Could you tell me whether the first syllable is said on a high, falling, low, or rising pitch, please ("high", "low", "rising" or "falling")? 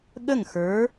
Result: falling